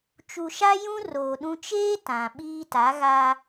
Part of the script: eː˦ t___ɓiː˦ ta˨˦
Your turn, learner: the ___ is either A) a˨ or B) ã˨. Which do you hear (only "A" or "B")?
B